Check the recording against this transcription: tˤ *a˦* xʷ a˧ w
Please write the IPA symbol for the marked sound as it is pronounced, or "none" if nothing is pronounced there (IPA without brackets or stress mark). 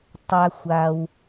a˦